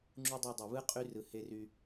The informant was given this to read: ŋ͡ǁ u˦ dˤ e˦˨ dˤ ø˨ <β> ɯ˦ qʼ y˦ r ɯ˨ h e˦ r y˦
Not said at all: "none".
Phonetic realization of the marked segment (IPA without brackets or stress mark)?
β